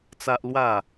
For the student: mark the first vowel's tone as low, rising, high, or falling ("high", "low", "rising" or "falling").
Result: high